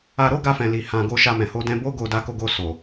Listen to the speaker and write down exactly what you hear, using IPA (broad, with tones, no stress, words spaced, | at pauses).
a˧ɾo˦ ɡa˧fɛ̃˨li˨ hã˨ ɡo˧ʃa˧mɛ̃˨ ho˧dɛ̃˧bo˦ ɡo˧da˧ko˧ɡo˧ so˨